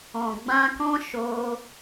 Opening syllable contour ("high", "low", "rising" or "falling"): low